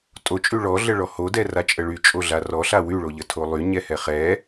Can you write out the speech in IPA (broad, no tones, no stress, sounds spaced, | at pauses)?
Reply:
tʼ o t͡ʃʼ y ɭ ɔ ɮ ə ɭ ɔ h o d ɛ r a t͡ʃʼ ə ɭ y t͡ʃʼ o ɮ a r ɔ ɬ a w y ɭ o ʎ ə tʰ o lˠ y ɲ ɛ h ɛ χ ɛ